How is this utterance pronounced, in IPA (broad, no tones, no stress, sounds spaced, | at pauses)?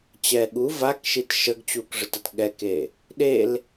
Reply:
t͡ɕ ɛ ɠ u v a k ʃ i t ʃ ə ɡ t͡ɕ u k ʐ ə t ə t ɠ ɛ k e | ɗ e l